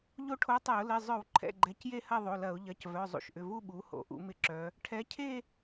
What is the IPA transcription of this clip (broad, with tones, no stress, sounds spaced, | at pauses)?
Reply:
ʎ o˥˧ ʈʰ o˧˥ tˤ ɛ˧˩˧ ʊ̯ l ɪ˩˧˩ zˤ œ˧˩˧ w ǃʰ ɛ̰˩˧˩ ɡ͡ǃ ɛ˩˧ c j e˥˧ h ɐ˥˧ ðˤ o˩˧˩ l ɐ˧˩˧ ʊ̯ ʎ ɐ˩˧˩ c v œ˩˧˩ zˤ ṵ˩˧˩ ʃ ʔ ʏ˩˧˩ v u˥˧ ɓ u˩˧ h o̰˩˧ ʔ ṵ˧˩˧ m ɪ˧˩˧ ǁ œ˩˧ | ʈʰ ɛ˩˧ cʰ e˥˧